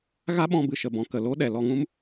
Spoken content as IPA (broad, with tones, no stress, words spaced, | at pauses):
ɣa˦ɓɔ̃˧ bɨ˨ʃə˨bɔ̃˨ kə˨lo˦ ɗɛ˨ lɔ˧ŋũ˦m